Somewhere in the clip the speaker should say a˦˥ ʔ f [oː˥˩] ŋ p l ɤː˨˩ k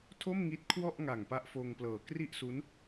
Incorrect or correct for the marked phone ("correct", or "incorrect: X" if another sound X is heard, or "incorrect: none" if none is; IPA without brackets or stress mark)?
incorrect: oː˧